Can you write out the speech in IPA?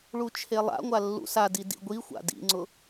ɭut͡ʃʰelˠa̰ŋʷa lːṵsadi dḭɡʷi xʷa̰dḭŋ͡ǀʊ

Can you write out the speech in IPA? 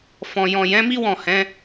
fɔ̃˨jɔ̃˨ jɛ̃˨˦mi˦ wɔ̃˦˨hɛ̃˨˦

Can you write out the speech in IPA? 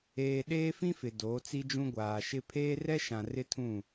eː˨ ɗeː˦fĩ˦fɪ˨ doː˨˦t͡si˦d͡ʒũ˦ ɡʷaː˨ʃɪ˦ pʰeː˦rɛ˦ʃã˨ rɪ˦tʰũ˦˨

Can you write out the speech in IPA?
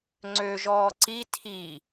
ŋ͡ǀøʒɔː ǀi tʰi

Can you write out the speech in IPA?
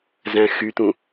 zæ̃xyt̪ũ

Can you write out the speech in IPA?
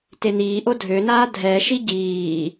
teniːʔo dʱønaː dʱɛʃi ɟiː

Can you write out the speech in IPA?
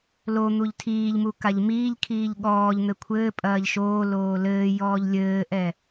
lo n̪uʎtʰiːʎmu kaʎmiːʎkʰiːʎ ɠɔːʎn̪ɘ kʷʰɘːpʼɐːʎ ʃoːloː lɘːjɔːʎ lʲɘːʔɛ

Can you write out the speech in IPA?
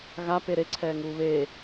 ɣape ɾeǀʰɛːŋuː βeː

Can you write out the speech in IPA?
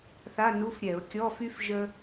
θa˧˥˧nu˧˥˧f ɾʲɛ˧˩˧ʊ̯kʲɔ˧˥˧fy˥f ʒə˥

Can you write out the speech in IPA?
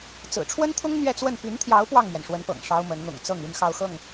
t͡sɹ̩˨˩ʈ͡ʂʰwə˥nt̪ʰʊ˥ŋ n̪ɥɛ˥˧t͡swə˥˩n py˧˥nt̪ʰjɑ˧˥ʊ̯ pwɑ˥˩ŋmɥɛ˩nʂwə˧˥npɤ̰˨˩ŋ ʂɑ˥ʊ̯mə˧˥n n̪ʊ̰˨˩ŋt͡sɤ˥˩ŋ y˥nxɑ˥˧ʊ̯xɤ˥˩ŋ

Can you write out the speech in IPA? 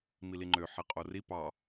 miliŋ͡ǃø ħiqʼori pɑ

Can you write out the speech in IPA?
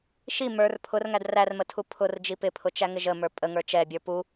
ʃi mə˞r pʰʊrŋæd rærmətʰu pʰʊrd͡ʒi pɪpʰʊt͡ʃæŋɪ ʒəmə˞ pʼəŋə˞ t͡ʃɛbʲə˞ pu

